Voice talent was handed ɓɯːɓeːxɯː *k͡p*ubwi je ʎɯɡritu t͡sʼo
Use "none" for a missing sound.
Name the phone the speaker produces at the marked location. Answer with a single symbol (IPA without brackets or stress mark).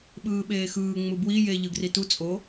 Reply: ŋ͡m